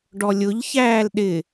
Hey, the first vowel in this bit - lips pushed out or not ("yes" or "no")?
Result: yes